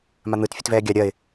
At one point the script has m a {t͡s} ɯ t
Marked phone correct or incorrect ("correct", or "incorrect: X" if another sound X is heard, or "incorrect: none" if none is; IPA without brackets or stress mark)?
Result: incorrect: n̪